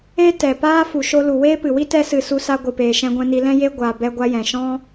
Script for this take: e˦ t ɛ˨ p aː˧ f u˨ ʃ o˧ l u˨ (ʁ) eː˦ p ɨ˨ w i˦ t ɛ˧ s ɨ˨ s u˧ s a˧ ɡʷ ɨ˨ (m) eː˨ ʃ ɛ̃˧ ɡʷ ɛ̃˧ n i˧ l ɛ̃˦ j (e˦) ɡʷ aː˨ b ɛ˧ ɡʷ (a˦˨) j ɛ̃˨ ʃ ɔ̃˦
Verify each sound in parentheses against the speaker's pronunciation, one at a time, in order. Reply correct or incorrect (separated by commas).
incorrect, incorrect, correct, incorrect